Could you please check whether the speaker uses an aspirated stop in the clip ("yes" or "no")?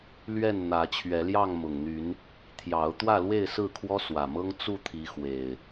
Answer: yes